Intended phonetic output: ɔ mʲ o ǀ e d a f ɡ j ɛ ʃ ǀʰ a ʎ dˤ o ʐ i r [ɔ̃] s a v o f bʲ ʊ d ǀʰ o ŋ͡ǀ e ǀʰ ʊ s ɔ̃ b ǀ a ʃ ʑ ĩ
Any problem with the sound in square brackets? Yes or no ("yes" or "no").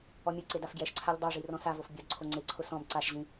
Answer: no